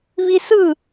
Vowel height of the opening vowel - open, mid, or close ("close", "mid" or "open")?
close